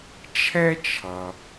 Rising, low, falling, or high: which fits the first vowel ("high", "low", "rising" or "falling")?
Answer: high